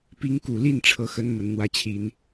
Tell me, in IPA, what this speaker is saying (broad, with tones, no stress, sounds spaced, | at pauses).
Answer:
p i˧˥ ŋ k u˨˩ l i˥˧ n ʈ͡ʂʰ ɤ˥˩ x ə˥ n m ə˨˩ n n̪ w ä˥˩ t͡ɕʰ i˧˥ n